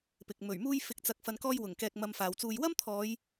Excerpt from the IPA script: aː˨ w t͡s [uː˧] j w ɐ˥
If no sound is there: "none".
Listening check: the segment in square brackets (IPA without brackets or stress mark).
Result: uː˧